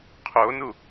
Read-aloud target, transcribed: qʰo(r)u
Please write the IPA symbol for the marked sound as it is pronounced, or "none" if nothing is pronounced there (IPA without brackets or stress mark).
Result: n